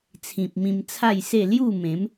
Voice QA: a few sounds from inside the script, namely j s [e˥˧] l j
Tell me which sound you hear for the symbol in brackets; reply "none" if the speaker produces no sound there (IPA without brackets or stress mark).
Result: e˥˧